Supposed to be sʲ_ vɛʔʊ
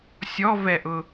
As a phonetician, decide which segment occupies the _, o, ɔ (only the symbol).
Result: ɔ